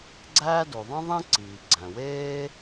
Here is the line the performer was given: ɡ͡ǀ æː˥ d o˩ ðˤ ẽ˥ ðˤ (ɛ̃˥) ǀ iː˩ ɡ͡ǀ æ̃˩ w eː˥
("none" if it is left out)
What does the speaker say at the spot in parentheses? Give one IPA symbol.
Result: ẽ˥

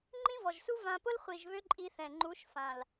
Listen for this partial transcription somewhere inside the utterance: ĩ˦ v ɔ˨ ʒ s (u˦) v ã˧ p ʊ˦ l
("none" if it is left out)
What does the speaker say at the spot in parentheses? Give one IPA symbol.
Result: u˦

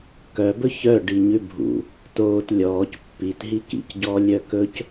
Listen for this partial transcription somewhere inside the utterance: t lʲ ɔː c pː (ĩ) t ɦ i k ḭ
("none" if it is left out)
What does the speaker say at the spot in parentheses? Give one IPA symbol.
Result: i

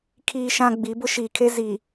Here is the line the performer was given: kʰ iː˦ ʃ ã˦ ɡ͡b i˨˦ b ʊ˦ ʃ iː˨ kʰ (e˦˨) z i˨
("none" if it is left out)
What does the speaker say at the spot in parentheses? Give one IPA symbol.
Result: e˦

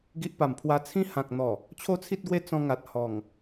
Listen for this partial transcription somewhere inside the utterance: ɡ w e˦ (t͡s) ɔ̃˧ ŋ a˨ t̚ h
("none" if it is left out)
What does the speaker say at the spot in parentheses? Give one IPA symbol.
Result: t͡s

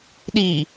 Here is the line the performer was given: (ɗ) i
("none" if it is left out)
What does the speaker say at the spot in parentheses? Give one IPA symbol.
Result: ɗ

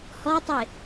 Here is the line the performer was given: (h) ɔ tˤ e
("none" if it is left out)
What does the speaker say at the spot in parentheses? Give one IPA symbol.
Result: h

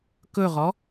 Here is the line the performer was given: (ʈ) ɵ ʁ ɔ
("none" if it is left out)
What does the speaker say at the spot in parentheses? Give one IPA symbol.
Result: k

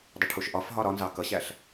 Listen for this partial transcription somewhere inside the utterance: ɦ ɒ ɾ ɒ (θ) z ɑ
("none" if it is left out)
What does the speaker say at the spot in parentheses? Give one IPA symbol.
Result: n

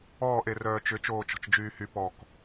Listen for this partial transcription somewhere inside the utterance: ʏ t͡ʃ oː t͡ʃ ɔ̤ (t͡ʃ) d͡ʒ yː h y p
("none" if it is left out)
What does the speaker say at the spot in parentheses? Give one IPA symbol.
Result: t͡ʃ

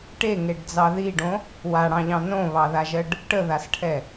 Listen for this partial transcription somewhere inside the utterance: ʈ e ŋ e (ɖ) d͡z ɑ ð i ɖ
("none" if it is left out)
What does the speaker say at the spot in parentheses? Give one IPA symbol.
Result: ɖ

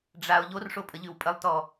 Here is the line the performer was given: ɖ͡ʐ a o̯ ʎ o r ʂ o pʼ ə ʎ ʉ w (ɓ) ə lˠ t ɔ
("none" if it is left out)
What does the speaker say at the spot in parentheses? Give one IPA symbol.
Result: pʼ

